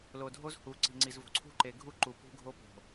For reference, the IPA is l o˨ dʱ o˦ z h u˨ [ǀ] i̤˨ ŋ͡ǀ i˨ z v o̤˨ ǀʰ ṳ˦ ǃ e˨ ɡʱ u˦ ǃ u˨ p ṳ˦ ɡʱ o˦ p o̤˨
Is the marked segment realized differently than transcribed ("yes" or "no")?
no